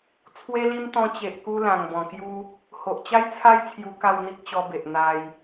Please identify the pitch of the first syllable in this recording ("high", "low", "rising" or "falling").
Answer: high